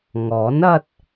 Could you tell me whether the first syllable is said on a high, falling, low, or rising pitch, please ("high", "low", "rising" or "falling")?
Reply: rising